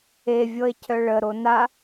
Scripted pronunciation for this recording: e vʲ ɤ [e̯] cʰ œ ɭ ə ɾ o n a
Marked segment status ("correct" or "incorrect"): correct